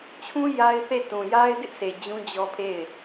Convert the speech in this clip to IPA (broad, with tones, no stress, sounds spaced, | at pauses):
t͡ɕʰ ũ˦ j a˦ ɪ̯ θ e˦˨ t ũ˨ j a˦ ɪ̯ d ɪ˦ ʔ s e˨ d͡ʑ ũ˦ d͡ʑ ɔ˦ pʰ e˦˨ ɪ̯